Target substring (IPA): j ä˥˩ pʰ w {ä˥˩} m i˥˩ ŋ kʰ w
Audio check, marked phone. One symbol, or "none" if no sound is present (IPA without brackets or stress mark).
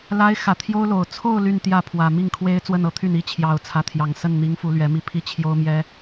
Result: ä˨˩